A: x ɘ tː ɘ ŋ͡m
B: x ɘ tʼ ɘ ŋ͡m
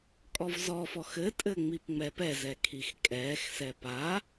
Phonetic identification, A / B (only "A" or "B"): B